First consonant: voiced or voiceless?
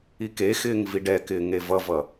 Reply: voiceless